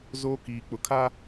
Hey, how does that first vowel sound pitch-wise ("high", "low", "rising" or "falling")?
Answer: high